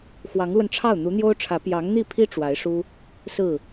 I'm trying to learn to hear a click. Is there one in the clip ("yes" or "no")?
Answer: no